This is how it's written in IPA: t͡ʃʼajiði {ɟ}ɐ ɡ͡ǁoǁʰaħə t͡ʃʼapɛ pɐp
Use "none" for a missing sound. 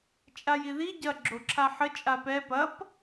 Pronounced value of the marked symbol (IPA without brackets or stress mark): ɟ